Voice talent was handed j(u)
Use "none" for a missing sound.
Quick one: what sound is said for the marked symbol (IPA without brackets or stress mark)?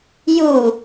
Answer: u